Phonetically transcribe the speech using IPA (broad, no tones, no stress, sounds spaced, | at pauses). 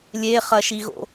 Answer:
lʲ e χ ɐ ʃ i ɣ o̰